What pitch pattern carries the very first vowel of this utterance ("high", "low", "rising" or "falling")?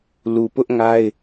low